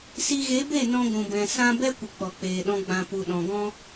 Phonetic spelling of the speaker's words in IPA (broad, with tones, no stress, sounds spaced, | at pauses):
s i˧ ɣ e˨˦ b e˦˨ n ɔ̃˧ ɡʷ ũ˨ b ɛ̃˨ s ã˧ b ɛ˦ kʷ ə˨ k͡p ɔ˨ k͡p eː˨ ɗ ɔ̃˧ ɡ͡b ã˧ p u˨ ɗ ɔ̃˨ ɡ ɔ̃˦